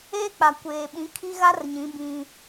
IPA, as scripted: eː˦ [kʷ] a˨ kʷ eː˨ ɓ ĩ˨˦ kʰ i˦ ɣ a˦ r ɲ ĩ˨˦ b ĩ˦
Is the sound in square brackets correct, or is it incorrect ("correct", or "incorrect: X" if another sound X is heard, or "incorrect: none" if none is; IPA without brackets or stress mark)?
incorrect: k͡p